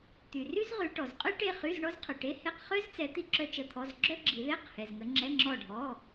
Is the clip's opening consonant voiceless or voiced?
voiceless